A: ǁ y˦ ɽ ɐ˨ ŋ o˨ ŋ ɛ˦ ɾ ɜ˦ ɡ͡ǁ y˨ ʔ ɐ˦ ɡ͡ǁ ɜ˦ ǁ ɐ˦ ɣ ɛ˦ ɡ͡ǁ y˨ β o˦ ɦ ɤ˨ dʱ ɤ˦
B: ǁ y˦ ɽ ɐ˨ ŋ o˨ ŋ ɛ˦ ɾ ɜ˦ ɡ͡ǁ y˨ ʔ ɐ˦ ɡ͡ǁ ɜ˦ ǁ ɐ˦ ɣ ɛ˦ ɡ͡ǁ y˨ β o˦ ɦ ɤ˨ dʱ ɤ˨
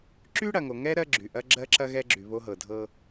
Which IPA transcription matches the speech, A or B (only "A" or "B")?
A